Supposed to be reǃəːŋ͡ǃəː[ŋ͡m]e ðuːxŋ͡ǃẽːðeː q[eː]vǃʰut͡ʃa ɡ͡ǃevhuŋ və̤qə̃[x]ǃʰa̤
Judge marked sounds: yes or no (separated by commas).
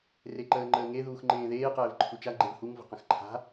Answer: no, no, yes